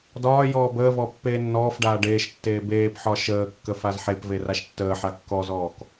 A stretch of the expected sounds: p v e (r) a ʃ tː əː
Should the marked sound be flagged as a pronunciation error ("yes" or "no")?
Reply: no